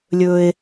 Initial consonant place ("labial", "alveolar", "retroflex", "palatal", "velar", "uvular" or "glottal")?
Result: alveolar